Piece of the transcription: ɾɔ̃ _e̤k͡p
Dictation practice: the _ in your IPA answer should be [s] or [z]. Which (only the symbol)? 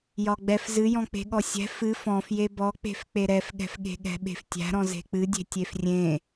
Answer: z